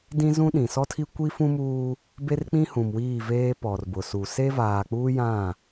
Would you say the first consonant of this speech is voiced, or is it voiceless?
voiced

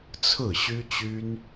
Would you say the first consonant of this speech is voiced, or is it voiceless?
voiceless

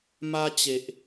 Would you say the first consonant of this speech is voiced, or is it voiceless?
voiced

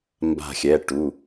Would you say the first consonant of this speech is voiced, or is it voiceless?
voiced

